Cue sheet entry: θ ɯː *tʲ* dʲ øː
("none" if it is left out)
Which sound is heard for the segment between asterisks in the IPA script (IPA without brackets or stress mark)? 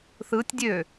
tʲ